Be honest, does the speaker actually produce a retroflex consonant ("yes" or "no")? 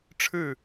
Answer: yes